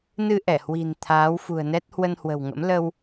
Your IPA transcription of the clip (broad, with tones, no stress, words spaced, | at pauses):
nɨ˧ ʔɛ˧˩hwi̤˨˩n t̪ʰaː˨˦wfṳ˨˩ə̯nɛ˦˥t̚ hwə˧nhwə̤˨˩wŋə̰˧˥m lə˧w